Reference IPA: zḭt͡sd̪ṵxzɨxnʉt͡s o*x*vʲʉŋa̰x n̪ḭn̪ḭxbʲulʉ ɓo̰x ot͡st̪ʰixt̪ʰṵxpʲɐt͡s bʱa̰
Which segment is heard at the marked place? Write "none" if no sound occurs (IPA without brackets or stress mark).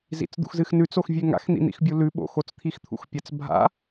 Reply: x